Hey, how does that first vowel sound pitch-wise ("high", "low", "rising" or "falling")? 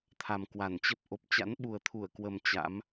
low